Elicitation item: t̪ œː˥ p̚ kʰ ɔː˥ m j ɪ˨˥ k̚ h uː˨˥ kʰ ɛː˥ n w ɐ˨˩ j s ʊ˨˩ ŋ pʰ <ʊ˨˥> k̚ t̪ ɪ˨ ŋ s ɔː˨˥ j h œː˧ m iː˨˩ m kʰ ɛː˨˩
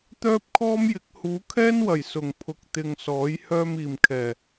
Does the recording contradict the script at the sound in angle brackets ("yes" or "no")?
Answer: yes